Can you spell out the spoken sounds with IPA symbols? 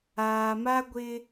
aː˨ m a˦ ɡʷ ɪ˦

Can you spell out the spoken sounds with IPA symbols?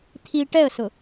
t̪ʰ i ʈ ɛ ə̯ s ʊ

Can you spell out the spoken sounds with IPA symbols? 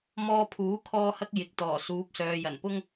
m ɔː˧ pʰ uː˨˥ kʰ ɔː˧ h ɐ˧ k̚ j ɪ˨ k̚ t̪ ɔː˨˩ s uː˨˥ p̚ s œː˨ j ɐ˨˩ n p ʊ˥ ŋ

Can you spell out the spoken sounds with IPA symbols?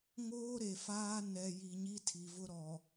ŋ oː˦ ɾ e˨ f aː˦ n ɛ˨ j i˨ ɲ i˦ tʰ i˨ v ʊ˦ ɾ ɔ˨

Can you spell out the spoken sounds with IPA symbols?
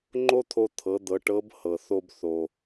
ŋ͡ǃ o˥ t̪ʰ o˧ t̪ʰ ɤ˩˧ d̪ ɤ˩˧ ʈ ɤ˧˥ b h ɤ˩ θ o˧ b θ o˩

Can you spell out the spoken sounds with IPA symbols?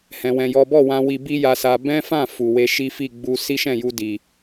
h ɛ̃˧ w ɛ̃˧ j ɔ˦ b ɔ˦˨ w ã˧ w i˧ b i˦ j a˧ s a˧ b ɛ̃˦ f ã˦˨ f u˨ w e˧ ʃ i˦ f i˦˨ ɡ͡b u˧ s i˦ ʃ ɛ̃˦˨ j u˧ d i˨

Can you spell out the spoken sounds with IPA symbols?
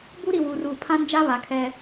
b u˦ ɾ i˨ w uː˨ r uː˨ pʰ ã˦ n d͡ʒ a˦ β a˨ kʰ ɛ˦

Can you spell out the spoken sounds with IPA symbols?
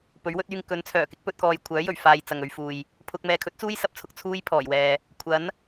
p ɵ˨˥ ɥ w ɵ˥ t̚ yː˧ ŋ k ɵ˨˥ n t͡sʰ œː˨˩ k ɪ˥ k̚ p ɵ˧ t̚ k ɔː˨ j kʷʰ œː˨˥ j ɵ˨˩ ɥ f aː˧ j t͡s ɐ˨ ŋ ɵ˧ ɥ f uː˨ j | pʰ ʊ˧ k̚ m ɛː˨ kʰ ɵ˨˥ t̚ t͡s uː˥ j s ɐ˧ p̚ t͡sʰ ʊ˧ k̚ t͡sʰ uː˥ j pʰ ɔː˨˩ j w ɛː˨ | kʷʰ ɐ˨˥ n

